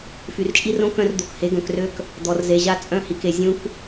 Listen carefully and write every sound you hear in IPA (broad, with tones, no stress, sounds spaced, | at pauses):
f y˨ r t͡ʃʼ i˦ r õ˦ k œ̃˦ r d̪ o˨ k h e˨˦ ɡ œ̃˨ k r ø˦ k | d̪ ɔ˨ r z e˨ ʑ a˦ t͡sʼ œ̃˦ h i˨ k e˨ zʲ ũ˦ k